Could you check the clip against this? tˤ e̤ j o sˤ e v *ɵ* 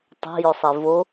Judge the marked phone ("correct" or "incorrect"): incorrect